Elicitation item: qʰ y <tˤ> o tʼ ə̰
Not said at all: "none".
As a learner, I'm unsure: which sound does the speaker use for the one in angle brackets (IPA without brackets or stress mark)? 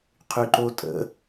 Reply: ǃ